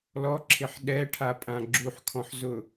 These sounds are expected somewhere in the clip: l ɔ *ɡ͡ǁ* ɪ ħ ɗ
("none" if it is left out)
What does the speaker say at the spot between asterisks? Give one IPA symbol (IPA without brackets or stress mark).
ǁʰ